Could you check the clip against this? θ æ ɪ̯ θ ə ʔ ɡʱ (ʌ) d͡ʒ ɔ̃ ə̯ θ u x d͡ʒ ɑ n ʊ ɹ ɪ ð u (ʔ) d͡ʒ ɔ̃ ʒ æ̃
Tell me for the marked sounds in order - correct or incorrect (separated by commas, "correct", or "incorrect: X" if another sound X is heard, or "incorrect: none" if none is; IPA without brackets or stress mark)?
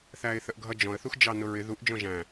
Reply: correct, correct